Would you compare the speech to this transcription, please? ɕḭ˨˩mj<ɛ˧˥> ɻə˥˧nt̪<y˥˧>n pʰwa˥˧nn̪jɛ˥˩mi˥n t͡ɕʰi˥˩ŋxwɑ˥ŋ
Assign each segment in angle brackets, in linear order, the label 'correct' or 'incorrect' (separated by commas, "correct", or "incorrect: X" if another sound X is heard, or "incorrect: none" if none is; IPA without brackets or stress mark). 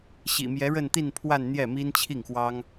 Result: correct, incorrect: i˥˧